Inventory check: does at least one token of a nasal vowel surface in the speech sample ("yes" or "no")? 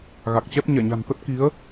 no